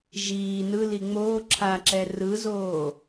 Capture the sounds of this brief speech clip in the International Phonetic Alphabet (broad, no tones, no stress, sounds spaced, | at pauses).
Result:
ʒ iː n ɯ l i ŋ͡m oː ǁʰ a ǁ ɛ r ɯ z oː